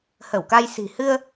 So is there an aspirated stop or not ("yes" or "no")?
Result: no